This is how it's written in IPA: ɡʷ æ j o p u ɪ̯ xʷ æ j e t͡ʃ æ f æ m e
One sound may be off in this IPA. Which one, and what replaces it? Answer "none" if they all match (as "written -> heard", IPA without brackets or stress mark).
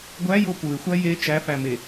none